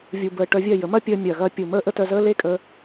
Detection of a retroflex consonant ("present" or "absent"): present